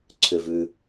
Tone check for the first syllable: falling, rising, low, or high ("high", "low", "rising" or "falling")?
low